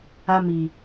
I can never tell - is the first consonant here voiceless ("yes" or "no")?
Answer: no